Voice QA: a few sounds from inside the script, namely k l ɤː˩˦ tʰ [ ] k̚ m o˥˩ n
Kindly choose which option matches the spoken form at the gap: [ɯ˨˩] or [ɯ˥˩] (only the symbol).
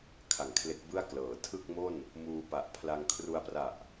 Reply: ɯ˥˩